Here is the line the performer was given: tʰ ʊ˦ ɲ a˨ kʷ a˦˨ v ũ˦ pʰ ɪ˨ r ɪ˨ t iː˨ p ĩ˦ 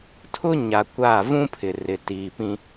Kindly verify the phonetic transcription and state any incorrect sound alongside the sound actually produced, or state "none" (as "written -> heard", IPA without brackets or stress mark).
none